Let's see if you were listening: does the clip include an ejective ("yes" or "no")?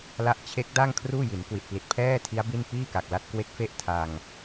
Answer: no